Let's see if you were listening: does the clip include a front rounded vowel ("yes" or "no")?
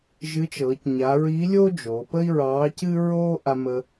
no